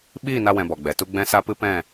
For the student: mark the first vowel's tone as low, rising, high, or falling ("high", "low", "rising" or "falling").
falling